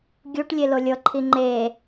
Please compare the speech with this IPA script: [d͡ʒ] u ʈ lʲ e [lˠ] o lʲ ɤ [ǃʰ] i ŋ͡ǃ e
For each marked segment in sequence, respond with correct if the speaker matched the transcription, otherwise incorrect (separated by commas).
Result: incorrect, incorrect, correct